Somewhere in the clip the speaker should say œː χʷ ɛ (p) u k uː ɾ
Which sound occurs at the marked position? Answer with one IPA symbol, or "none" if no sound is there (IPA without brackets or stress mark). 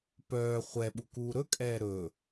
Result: ɓ